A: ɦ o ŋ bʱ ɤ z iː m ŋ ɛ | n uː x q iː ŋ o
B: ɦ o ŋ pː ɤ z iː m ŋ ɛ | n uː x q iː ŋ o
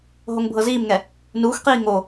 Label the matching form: A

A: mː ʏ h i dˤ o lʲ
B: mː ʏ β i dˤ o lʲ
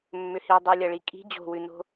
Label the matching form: A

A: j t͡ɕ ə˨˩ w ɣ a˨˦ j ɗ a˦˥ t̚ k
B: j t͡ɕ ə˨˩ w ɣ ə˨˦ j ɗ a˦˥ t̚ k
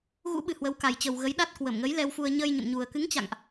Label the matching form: B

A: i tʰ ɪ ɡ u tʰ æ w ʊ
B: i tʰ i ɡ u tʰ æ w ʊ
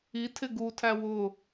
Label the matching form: A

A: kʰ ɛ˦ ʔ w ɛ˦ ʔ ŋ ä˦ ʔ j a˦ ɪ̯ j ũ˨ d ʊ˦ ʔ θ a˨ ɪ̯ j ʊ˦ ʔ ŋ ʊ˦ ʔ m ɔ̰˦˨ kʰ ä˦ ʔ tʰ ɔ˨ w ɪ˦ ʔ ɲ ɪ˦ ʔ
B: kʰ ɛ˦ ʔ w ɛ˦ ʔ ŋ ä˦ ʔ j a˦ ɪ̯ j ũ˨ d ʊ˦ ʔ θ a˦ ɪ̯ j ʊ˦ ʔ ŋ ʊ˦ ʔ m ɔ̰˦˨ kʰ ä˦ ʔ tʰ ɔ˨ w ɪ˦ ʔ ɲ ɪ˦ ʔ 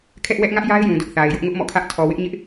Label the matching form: A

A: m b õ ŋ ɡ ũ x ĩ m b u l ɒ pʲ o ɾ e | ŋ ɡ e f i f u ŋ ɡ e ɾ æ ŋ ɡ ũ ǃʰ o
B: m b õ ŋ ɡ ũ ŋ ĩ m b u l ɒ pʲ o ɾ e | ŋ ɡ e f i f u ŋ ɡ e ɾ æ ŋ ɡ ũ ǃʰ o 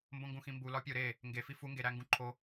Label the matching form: A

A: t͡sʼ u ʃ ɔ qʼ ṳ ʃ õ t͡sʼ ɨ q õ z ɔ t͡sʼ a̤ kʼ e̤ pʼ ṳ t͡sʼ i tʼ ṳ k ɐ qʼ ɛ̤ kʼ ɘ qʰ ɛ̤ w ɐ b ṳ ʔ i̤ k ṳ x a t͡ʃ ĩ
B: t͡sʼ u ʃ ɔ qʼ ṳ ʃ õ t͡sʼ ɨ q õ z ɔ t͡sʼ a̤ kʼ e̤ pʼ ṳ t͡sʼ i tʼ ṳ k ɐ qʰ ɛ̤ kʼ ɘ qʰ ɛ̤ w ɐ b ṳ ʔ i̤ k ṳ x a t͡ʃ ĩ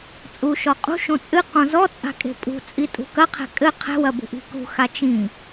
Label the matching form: B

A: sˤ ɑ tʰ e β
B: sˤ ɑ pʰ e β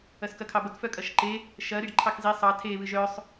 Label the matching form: A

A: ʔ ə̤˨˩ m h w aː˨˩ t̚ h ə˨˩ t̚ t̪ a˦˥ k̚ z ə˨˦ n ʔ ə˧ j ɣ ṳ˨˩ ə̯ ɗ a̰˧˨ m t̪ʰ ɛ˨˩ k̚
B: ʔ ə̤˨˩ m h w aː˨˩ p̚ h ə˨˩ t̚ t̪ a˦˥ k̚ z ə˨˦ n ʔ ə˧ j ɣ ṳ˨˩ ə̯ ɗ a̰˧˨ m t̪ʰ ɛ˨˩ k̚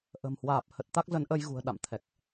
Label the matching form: B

